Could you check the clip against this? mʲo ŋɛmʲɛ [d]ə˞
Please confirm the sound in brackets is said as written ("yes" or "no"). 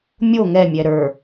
no